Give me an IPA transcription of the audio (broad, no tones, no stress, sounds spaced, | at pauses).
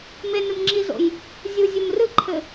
m e n ɨ m ŋ͡ǁ i z o̰ j | zʲ u zʲ u m r ɨ ǃʰ ɘ